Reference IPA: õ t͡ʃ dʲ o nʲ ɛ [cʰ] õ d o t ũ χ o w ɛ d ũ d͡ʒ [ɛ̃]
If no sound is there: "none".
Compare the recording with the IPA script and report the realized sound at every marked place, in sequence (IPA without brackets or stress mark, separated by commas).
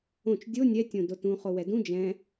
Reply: tʲ, ɛ̃